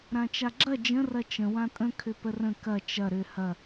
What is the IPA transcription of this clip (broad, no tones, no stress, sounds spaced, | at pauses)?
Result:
ɾ ã t͡ʃ a ɡ͡ǁ ɐ d͡ʒ ə̃ r ɐ t͡ʃ ə̃ w ã tʼ ə̃ kʰ ʏ p ə r ə̃ k ɐ t͡ʃ ɐ ɾ ʏ h ɐ